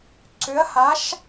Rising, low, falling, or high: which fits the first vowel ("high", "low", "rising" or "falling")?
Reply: rising